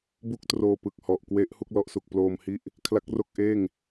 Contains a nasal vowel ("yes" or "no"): no